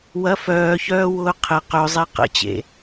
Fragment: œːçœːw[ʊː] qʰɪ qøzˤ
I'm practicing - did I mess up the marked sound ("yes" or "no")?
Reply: no